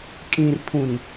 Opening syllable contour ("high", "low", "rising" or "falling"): low